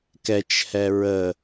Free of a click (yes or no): yes